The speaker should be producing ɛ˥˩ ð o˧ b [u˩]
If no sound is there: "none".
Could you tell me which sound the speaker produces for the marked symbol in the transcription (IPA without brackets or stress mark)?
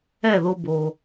o˩